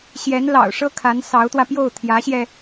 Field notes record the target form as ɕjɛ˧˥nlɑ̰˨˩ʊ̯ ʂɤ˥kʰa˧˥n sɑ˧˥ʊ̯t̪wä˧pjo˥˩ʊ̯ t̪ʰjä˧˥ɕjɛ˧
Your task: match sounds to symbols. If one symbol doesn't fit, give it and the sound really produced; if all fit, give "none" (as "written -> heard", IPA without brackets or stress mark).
none